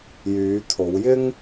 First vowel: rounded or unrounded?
rounded